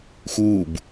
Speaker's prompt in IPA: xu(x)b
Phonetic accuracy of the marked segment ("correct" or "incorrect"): incorrect